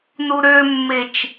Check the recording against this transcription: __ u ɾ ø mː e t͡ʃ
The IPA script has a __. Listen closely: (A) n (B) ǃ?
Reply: A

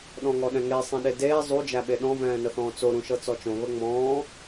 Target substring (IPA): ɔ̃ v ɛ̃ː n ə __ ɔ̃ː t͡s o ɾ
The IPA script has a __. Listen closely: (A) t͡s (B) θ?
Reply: B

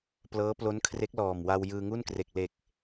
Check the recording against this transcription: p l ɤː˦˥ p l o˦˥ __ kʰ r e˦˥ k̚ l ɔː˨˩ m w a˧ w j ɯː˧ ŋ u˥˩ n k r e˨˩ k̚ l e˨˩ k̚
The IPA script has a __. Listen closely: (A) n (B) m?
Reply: A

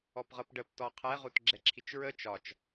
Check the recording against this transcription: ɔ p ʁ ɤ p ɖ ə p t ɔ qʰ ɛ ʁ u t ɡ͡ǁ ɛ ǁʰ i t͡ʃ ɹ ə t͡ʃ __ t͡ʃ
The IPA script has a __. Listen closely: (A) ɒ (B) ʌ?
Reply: A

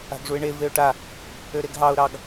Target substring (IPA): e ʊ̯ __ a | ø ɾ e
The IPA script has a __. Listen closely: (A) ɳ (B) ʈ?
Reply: B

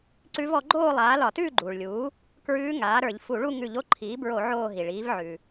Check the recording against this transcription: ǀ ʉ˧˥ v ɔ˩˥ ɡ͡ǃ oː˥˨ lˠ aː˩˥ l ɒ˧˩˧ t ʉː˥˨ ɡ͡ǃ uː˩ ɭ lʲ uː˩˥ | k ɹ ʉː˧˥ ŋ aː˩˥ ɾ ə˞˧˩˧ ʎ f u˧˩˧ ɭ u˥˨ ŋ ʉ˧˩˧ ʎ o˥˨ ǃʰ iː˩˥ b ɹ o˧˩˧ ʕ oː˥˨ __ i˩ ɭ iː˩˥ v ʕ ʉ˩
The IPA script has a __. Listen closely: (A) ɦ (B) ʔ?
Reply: A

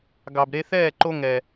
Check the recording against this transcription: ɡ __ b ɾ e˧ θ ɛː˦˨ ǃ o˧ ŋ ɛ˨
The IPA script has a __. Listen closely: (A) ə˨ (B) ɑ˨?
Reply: B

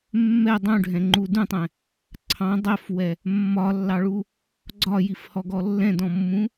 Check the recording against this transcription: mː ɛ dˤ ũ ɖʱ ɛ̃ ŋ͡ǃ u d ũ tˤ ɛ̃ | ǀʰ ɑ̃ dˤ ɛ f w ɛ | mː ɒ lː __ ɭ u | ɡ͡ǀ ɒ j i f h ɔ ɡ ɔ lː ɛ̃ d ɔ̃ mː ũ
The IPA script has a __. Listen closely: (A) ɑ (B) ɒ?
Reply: A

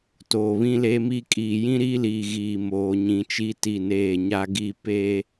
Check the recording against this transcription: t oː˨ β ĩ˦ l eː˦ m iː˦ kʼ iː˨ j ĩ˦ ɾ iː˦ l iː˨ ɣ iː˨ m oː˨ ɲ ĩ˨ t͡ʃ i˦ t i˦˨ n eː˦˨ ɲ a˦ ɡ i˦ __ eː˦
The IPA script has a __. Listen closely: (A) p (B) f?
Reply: A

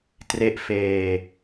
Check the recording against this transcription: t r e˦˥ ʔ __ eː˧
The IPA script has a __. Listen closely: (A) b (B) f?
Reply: B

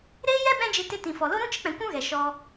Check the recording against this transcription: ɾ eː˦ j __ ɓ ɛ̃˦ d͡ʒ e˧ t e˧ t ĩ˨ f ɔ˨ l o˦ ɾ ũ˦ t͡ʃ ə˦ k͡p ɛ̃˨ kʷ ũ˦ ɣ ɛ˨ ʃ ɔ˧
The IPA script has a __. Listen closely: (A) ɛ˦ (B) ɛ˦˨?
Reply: A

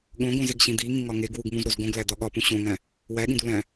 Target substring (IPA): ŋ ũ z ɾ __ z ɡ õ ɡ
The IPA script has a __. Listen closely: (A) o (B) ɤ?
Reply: A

